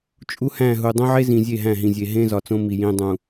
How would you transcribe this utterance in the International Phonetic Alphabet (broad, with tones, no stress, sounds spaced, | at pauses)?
t͡ʃʼ u˦ h æ̃˦˨ ɦ u˨ dˤ õ˦ ʕ e˦ z ĩ˨ zʲ e˦˨ ɦ æ̃˦˨ ɦ ĩ˨ zʲ e˨ ɦ ẽ˦ z ɒ˨ t͡s õ˦ m i˨ j ĩ˨ dˤ ũ˨